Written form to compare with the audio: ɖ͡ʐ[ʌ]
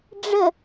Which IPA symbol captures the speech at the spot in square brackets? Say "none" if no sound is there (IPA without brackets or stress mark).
ə